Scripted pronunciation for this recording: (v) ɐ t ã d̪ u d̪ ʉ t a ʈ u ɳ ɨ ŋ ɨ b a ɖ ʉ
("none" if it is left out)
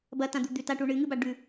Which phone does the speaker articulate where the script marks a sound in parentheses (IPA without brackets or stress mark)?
b